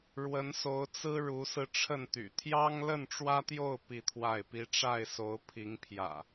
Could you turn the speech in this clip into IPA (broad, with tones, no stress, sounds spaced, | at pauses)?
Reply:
ɻ w ə˨˦ n s o˨˦ ʊ̯ t͡s ɹ̩˦ ɻ u˨˦ s ɹ̩˧ ʈ͡ʂʰ ə˥˨ n t̪ y̰˨˩ t̪ʰ j ɑ˦ ŋ l ə˥˨ n ʈ͡ʂ w ä˦ t̪ j o˥˨ ʊ̯ p i˥˨ t̪ʰ w a˥˨ ɪ̯ p i˦ ʈ͡ʂ a˥˨ ɪ̯ s o˨˦ ʊ̯ pʰ i˨˦ ŋ pʰ j ä̰˨˩